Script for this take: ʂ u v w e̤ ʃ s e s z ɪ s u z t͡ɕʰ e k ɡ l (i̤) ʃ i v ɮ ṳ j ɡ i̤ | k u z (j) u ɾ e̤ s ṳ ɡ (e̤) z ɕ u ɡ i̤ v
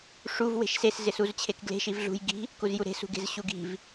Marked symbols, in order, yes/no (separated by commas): no, yes, yes